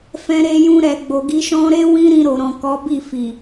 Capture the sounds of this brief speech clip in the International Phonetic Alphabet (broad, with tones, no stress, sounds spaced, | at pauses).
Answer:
f ɛ̃˧ ɾ e˧ j ũ˧ ɾ ɛ˨ ɡ͡b o˨ ɡ i˧ ʃ ɔ̃˧ ɾ e˦ w ĩ˦ ɾ ĩ˧ ɾ o˨ ɾ ɔ̃˨ k ɔ˨˦ b i˦˨ f i˨